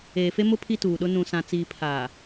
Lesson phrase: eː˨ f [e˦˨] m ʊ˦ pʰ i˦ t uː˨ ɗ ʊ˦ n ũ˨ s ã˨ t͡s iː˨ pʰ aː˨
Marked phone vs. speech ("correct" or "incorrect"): incorrect